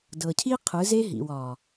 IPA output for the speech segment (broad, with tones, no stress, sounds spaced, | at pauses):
d ɤ˨ cʰ i˦ qʰ ɯ˨˦ z e˦ ɦ ḭ˨ w ɒ˨